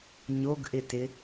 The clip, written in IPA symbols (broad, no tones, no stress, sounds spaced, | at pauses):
ɲ o ɡ ʔ ɪ t ɪ